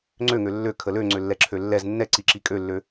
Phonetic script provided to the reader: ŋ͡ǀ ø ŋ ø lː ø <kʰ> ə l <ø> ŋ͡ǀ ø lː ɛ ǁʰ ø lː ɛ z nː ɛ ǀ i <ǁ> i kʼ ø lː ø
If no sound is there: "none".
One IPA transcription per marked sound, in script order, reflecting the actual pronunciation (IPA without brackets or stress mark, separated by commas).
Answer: kʰ, ø, ǁ